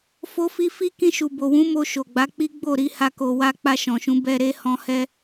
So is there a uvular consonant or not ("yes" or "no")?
no